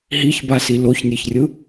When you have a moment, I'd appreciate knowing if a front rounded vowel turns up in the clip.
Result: no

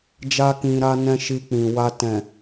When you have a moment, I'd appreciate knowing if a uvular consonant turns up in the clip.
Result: no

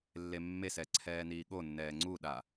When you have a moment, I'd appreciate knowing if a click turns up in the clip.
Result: yes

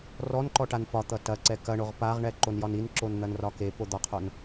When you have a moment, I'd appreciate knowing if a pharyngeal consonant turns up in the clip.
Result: no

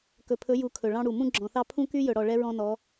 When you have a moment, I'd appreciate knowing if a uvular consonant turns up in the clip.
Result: no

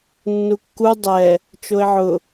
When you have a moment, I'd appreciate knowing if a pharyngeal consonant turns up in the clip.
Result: yes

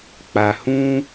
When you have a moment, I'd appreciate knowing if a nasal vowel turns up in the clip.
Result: yes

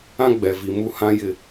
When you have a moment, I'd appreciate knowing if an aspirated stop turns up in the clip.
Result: no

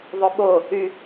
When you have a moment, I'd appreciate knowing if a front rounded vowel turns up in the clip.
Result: yes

